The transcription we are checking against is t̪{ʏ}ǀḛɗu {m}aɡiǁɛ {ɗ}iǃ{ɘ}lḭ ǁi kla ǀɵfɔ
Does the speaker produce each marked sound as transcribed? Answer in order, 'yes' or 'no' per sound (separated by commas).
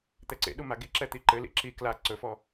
no, yes, no, yes